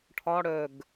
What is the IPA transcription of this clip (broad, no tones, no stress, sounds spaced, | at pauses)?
ʈʰ ɒ ɽ œ ɡ